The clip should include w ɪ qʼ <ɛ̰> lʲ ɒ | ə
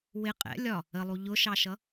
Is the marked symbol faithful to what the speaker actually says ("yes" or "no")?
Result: yes